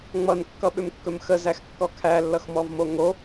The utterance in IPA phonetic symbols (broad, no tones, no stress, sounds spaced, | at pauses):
ŋ͡m ʌ n kː ʌ ɓ ʏ m kː ɵ m x ə z æ x kː ɔ kʰ æ lː ʌ x m ɔ v m o ŋ o